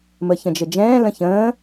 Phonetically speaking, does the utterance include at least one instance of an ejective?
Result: no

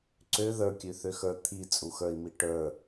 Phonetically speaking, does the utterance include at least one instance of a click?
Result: yes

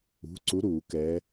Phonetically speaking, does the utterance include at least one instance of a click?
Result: yes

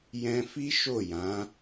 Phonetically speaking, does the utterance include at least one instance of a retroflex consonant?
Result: no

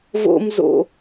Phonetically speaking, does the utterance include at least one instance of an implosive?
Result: no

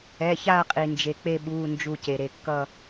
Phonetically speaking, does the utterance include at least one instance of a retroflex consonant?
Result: no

